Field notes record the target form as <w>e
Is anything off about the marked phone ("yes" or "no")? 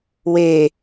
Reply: no